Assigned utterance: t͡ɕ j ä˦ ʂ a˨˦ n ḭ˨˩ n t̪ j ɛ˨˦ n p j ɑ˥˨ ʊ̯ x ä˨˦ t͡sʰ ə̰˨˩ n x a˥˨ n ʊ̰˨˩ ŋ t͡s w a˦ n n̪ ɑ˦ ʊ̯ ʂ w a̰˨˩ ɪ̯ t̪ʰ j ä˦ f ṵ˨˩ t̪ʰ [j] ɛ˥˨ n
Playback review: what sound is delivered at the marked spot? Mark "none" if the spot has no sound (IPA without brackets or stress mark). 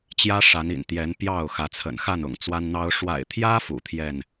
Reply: j